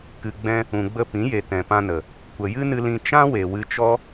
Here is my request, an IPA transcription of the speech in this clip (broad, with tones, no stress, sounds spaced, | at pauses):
k ɨ˨ ɡ͡b ɛ̃˧ | ũ˨ ɡ͡b ə˧ p ĩ˨˦ j e˨ t ɛ̃˨ p ã˧ n ə˨ | kʷ ə˨ j ɨ˦ n ɨ˧ l ĩ˧ t͡ʃ ã˦ w e˨ w ɨ˧ t͡ʃ ɔ˦